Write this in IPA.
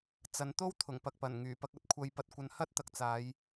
t͡s ɐ˨˧ n t̪ o˥ w t̪ʰ ʊ˨˩ ŋ p ɐ˨ k̚ p ɐ˨˩ n ŋ yː˨˩ p ɐ˧ k̚ ɐ˧ t̚ kʷʰ ɐ˧ j p ɐ˧ t̚ kʷ ɐ˧ n h ɐ˥ t̚ t̪ ɐ˧ k̚ t͡s aː˨˧ j

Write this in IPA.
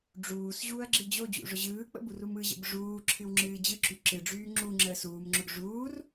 ɖ͡ʐ uː s ʑ uː ɐ̯ ɡ͡ǁ ɨ d͡ʑ o d͡ʑ ṵ ʐ ʊ ʑ ɯː k͡p ə̰ b u r u m ɯ ʑ ə̰ b ʐ uː ǁʰ ɨ w ŋ͡ǁ ɨː d͡ʑ ɯ ǁ y ǁ ɨ ɖ͡ʐ yː ŋ͡ǁ u ŋ͡ǁ əː s uː m ŋ͡ǁ ʊ ɡ ʐ uː r

